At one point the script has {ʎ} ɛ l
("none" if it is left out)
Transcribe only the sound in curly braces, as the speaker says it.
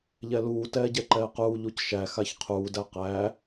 ʎ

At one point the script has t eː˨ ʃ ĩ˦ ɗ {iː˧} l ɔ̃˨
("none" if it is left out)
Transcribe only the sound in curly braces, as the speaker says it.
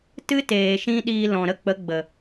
iː˧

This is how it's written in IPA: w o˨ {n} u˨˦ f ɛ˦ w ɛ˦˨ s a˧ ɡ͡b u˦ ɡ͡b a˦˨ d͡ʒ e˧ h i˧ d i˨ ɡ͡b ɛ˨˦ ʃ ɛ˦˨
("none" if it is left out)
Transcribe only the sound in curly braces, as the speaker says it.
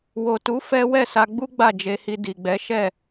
t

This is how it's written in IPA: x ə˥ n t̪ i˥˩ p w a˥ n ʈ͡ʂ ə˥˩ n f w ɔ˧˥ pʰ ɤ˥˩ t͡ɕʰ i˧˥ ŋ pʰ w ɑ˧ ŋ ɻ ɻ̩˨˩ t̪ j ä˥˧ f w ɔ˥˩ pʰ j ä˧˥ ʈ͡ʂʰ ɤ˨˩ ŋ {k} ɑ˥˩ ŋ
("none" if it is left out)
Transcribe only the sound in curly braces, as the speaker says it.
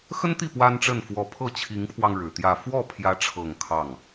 kʰ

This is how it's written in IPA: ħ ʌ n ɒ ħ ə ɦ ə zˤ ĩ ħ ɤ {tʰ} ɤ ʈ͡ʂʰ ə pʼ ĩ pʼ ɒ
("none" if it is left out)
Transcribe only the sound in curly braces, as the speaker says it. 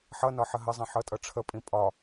tʼ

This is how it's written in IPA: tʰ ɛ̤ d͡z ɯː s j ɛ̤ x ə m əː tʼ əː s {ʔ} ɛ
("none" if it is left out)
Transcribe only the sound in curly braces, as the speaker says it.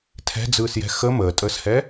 h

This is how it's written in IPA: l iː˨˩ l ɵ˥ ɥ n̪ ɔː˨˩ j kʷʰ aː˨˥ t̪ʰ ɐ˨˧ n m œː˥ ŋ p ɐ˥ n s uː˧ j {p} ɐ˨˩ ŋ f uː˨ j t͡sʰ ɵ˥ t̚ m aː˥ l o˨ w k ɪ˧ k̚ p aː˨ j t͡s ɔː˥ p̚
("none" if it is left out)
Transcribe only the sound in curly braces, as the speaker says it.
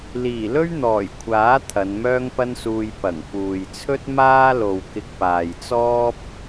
p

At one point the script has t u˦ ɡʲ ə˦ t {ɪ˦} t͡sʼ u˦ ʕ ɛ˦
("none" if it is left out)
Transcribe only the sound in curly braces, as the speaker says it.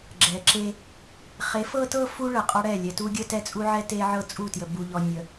ɛ˦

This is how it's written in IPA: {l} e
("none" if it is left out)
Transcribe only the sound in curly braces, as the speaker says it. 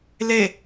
l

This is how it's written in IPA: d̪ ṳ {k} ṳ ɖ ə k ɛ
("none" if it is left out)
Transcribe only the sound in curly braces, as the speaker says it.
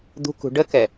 k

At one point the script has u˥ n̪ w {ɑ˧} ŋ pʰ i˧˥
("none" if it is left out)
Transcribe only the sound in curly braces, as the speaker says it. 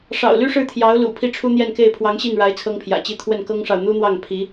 ɑ˥˩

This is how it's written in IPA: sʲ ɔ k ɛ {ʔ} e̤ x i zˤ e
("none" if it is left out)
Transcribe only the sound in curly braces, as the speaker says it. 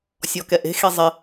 ʔ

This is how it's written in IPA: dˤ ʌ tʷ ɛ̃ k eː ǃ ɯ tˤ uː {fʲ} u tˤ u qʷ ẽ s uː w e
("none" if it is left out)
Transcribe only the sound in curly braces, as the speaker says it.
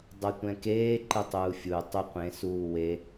fʲ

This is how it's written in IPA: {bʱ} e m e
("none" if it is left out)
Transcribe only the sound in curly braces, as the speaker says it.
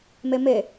m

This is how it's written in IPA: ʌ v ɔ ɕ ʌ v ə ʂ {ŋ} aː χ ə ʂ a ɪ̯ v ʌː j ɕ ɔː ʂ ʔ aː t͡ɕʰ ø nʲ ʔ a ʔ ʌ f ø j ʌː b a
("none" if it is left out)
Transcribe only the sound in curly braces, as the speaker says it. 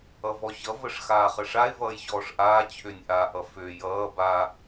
x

